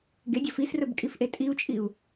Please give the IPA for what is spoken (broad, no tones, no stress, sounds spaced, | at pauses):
ɡ e dʲ ɐ f i s r ɵ b kʼ i f ʔ e tʼ i u̯ t͡ʃʼ i u̯